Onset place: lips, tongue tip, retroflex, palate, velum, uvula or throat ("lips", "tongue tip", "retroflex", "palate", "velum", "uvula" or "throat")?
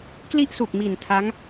velum